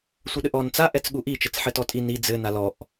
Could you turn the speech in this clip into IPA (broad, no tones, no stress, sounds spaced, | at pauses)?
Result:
sʷ ɘ ɗ ɘ ʔ ɔ n t͡s a ʔ ɛ t͡s ɠ u ʔ i t͡ʃ ɘ t͡s ħ ɘ t ɔ tʼ i n i d͡z ɘ n a l ɔ ʔ